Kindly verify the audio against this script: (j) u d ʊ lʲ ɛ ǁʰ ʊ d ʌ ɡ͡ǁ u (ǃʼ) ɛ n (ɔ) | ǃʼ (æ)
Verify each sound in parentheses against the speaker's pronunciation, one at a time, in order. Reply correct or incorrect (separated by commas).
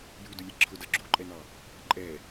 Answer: correct, correct, incorrect, incorrect